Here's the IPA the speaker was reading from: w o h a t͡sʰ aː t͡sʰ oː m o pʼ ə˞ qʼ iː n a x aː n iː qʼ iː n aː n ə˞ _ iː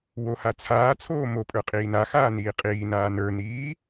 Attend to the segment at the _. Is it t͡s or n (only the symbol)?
n